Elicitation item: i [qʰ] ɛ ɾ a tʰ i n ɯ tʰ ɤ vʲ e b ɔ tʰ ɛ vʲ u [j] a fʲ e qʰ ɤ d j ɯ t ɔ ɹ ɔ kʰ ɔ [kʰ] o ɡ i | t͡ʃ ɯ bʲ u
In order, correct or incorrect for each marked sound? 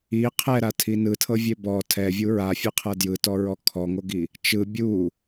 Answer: correct, incorrect, incorrect

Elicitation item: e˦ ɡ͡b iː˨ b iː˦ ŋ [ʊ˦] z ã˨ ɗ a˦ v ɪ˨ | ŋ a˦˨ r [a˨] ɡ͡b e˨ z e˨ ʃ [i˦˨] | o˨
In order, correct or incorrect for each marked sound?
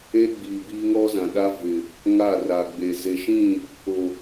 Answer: incorrect, correct, incorrect

